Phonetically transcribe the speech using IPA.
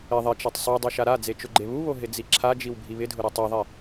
ɪ ðˤɪt͡ʃatˤ sˤu dˤuʃaɾad͡ze t͡ʃʊɡ͡ǃeβuβo ɦɪd͡ziǁʰad͡ʒiw bʱiβɪdʱʊ ɾetˤoðˤi

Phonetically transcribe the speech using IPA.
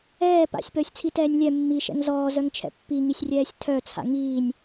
ɛː pa̰sʲpəːsʲt͡sʰitɛːnʲ lʲɛ mːiʃɛ̰ŋ zɔːzœŋt͡ʃʰɛ̰ pːiŋisʲrʲɛːsʲ tʰœt͡sʰa̰ ŋiːnʲ

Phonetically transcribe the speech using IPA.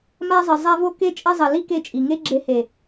ma˧zˤə˨ zˤa˧vo˧ ke˧t͡ʃʼɐ˧zˤɐ˨ li˦ke˧t͡ʃʼi˨ŋe˦ ɡ͡ǁe˧ he˨

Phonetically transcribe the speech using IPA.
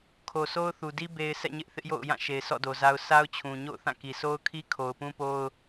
kʰo˨sʰo˦ʊ̯θu˨di˦ be˨ɪ̯ sʰɛ̰˦˨ɲɪ˦ʔθɪ˦ʔjo̰˦˨ʊ̯ jã˦˨ ʃe˨ɪ̯sɔ̰˦˨do˨za˦ʊ̯ sa˦ʊ̯t͡ɕʰũ˨ ɲo̰˦˨ʊ̯θã˦˨ki˨ sʰo˦ʊ̯kʰi˦ kʰo˨ʊ̯pũ˦po˦ʊ̯

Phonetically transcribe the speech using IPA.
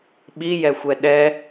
ɓijɛxʷɛ ɗɛ

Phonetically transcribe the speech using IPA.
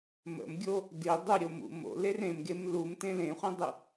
mə̰mɡʲo | di dˤuɾʲomṵ mo̰ler ẽmɡem lumtẽ lẽχʷẽdˤʉ

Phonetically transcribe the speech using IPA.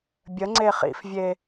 bʲəŋ͡ǀe χḭfvʲe

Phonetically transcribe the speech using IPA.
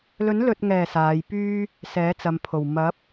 lɵ˨˥nlɵ˨t̚ŋɛː˨˩ saː˨˧jpyː˥ | sɛː˨˥t͡sɐ˨mpʰo˨˩w mɐ˨˥p̚

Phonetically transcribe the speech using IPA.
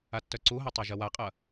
atːœǀuɦɐ tˤaʒɐwaqʼɐ

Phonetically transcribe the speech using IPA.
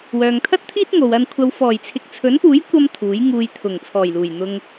wœː˨ŋt̪ʰɐ˥t̚t̪ʰiː˥t̚ŋo˨w ɐ˨nkʷʰɐ˨w fɔː˨˩jt͡sʰɪ˨k̚t͡sʰɵ˨˥npuː˨˥j kʷɐ˧m t̪ʰuː˨˥jŋuː˧j t̪ʰʊ˨˩ŋt͡sʰɔː˨˩jluː˨˩j n̪ʊ˧ŋ

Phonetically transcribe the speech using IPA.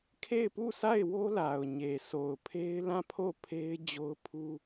kʰe˦˨ɪ̯pu˦˨sʰa˦˨ɪ̯wo˦ la˨ʊ̯ɲe˨ sʰo˨ʊ̯pʰe˦ɪ̯lã˦˨ pʰo˦˨pʰe˦ɪ̯ d͡ʑo˦ʊ̯pʰu˦

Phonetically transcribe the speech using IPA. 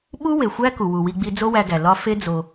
ɓu˦we˨xʷæ˦ ku˨ wu˨wi˧ɡ͡bi˧ d͡zo˦wæ˧ɡæ˨ lɒ˦ fe˦d͡zo˧

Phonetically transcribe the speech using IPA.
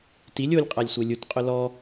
tilʲ olʲqʼalʲsʷe lʲutqʼʊ lɔ

